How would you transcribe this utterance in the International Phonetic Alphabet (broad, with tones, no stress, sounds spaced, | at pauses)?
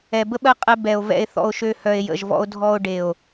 ɛ˨ b ə˦ ɓ ɜ˧ qʼ ɛ˦ b ɛ˨ o̯ v ɛ̰˧ e̯ θ ɔ̰˧ o̯ ʃ ø˧ h œ˨ e̯ j ə̰˨ ʒ v ɔ̰˧ o̯ dʱ ɔ˧ o̯ ɖ e˨ o̯